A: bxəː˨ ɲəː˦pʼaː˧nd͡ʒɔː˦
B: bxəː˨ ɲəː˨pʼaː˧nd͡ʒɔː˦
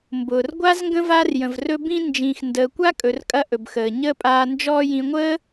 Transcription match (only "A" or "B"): A